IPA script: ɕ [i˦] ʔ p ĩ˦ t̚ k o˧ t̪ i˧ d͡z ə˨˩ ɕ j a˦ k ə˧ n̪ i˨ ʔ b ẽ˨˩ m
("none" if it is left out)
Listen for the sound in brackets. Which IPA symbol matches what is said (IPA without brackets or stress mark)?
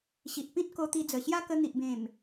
i˨